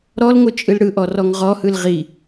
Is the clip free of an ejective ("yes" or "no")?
no